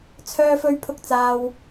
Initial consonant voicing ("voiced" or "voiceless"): voiceless